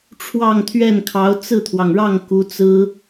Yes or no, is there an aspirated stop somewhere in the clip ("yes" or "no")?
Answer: yes